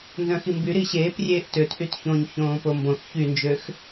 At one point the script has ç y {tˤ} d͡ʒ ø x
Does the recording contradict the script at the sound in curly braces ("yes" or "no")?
yes